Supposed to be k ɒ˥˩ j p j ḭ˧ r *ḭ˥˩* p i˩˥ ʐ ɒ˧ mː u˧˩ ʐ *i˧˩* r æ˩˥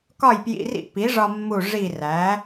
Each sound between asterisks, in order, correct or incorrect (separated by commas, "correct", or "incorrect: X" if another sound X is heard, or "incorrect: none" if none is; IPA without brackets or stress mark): correct, correct